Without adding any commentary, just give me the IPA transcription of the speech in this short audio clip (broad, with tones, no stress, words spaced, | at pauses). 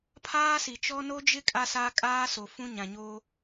pʰaː˦si˨t͡ʃɔ˦ no˦d͡ʒɪ˦ kʼa˦sa˦ kʼaː˦so˨fũ˦ ɲã˨ɲo˦